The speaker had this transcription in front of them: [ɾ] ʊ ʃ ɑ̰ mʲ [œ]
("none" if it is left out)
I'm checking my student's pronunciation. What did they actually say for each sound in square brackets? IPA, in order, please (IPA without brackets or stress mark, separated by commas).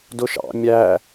d, æ